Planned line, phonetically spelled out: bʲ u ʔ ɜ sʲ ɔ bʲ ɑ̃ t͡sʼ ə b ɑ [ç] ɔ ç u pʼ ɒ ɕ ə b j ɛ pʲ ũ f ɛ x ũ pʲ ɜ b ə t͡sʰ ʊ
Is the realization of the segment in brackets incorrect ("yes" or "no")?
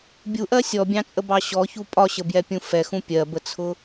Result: yes